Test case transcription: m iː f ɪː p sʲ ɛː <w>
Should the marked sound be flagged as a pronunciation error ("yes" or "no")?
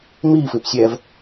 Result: yes